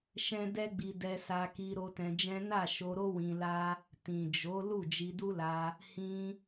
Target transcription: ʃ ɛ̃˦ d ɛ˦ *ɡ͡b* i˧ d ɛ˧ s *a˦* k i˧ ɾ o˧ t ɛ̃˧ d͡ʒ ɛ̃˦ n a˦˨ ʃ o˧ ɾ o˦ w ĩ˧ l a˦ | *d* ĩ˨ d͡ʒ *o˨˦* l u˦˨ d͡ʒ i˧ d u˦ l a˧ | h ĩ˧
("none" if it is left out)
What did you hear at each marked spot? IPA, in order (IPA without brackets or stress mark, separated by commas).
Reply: ɡ͡b, a˧, t, o˨˦